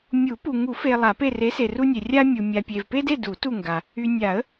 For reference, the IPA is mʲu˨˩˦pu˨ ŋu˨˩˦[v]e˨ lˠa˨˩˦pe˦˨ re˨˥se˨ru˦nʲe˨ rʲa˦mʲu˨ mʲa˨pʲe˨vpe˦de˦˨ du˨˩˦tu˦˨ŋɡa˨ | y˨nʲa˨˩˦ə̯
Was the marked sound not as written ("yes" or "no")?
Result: yes